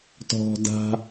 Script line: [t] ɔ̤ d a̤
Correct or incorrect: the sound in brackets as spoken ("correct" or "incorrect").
correct